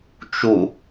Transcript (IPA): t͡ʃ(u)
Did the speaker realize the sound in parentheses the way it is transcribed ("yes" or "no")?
yes